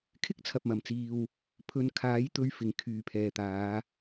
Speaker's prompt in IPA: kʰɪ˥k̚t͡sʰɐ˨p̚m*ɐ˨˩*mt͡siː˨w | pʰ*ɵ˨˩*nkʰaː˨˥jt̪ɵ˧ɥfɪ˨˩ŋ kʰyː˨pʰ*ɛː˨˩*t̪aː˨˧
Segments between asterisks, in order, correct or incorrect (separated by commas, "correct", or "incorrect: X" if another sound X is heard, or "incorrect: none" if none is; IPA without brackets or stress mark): correct, incorrect: ɵ˨˧, incorrect: ɛː˨